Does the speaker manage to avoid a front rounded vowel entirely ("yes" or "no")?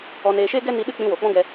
yes